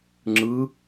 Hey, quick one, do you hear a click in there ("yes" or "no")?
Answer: yes